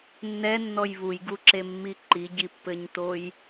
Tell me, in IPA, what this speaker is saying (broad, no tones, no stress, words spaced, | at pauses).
nːɛnːɔj βujɡuǁemːi ǃiɟipːɘɲtoj